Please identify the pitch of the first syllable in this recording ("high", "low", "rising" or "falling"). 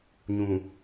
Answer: low